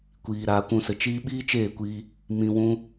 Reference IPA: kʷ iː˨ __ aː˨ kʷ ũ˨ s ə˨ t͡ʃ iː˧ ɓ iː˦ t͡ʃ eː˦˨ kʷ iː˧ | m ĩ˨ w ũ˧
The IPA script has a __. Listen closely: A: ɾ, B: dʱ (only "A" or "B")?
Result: A